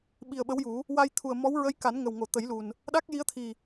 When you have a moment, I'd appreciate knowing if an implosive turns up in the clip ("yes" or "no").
yes